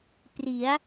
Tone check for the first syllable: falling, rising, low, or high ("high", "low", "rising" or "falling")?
rising